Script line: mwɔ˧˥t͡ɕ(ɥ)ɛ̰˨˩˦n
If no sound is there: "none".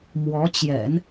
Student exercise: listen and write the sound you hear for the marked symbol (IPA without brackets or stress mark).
j